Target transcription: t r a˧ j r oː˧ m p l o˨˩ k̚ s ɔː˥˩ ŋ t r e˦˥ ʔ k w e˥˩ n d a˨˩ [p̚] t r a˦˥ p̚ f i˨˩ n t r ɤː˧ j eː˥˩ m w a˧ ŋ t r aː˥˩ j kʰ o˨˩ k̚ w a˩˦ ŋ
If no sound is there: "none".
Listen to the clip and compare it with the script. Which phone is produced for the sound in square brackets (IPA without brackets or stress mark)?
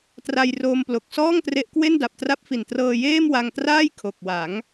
p̚